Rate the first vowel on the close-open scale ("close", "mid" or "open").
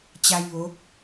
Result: open